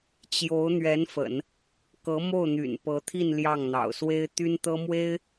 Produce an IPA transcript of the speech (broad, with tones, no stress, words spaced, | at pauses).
t͡ɕjo˧˥ʊ̯ n̪ɥɛ˧˥nfə̰˨˩˦n | kɤ˧˥ mo˥˩ʊ̯n̪y̰˨˩npɤ˧˥t̪ʰi˥˧n ljɑ˥˩ŋ n̪ɑ̰˨˩ʊ̯swe˥ɪ̯ t̪y˥nt̪ɤ˥mwe˥ɪ̯